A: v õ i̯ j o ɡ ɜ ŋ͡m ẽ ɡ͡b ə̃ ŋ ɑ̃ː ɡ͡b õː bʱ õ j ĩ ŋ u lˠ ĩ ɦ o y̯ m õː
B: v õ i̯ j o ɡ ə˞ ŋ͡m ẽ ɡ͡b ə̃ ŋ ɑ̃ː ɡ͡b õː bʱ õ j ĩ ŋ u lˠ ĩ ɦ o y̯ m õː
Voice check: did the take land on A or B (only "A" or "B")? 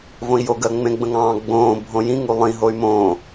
A